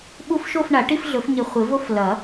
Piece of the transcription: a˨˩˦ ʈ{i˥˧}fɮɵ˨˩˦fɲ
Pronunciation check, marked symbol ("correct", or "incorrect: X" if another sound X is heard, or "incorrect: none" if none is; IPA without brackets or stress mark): correct